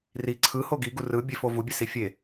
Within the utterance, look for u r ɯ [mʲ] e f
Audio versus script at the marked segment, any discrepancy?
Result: yes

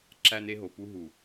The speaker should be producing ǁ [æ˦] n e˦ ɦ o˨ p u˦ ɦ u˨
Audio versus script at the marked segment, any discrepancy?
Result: no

